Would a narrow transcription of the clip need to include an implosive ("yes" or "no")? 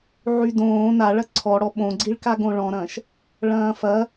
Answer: yes